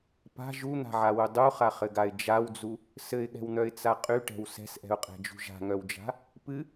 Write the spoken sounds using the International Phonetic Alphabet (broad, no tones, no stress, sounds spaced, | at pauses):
p a̤ ʒ u n̪ a̤ ʕ a w u dˤ u χ a χ ɘ ɡ a ɪ̯ d͡ʒ a w d͡z u | s ɘ ɪ̯ ɠ ɛ̤ w n̪ œ ɪ̯ t͡s a qʼ y ʈ ɛ̤ w s ɛ̤ s ʔ ɛ̤ ʊ̯ qʼ ɛ̤ d͡ʒ ṳ ʒ a̤ ŋ œ w d͡ʒ a̤ | p ɨ